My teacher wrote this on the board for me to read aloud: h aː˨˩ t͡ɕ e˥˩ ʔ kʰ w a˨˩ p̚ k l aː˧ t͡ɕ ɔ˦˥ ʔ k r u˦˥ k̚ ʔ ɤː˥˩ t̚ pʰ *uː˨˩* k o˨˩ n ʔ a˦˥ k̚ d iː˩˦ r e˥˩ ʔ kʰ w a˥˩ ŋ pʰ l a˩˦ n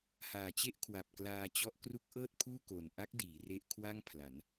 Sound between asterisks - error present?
yes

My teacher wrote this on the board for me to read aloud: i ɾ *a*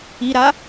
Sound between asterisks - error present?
no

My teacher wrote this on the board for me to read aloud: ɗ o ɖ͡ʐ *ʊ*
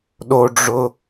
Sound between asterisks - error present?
no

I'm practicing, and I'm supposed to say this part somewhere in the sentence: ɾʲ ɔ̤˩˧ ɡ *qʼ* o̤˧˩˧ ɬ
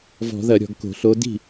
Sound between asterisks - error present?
yes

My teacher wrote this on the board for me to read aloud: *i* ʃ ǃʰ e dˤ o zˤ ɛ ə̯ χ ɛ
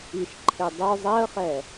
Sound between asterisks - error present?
no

